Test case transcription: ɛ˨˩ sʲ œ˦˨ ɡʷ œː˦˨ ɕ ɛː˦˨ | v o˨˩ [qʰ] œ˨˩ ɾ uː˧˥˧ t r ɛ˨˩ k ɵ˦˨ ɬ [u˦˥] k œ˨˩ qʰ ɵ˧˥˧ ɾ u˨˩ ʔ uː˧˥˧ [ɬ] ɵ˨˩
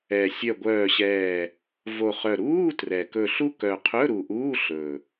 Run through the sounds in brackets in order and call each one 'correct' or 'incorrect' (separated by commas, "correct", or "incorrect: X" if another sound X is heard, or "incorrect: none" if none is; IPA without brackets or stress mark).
incorrect: χ, correct, correct